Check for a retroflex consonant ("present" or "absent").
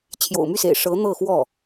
present